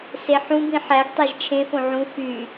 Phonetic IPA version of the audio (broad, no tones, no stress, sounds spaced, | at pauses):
s e ħ ũ b ĩ ħ æ ɡ tˤ æ ʒ t͡ʃʰ ẽ f õ ʕ ũ f y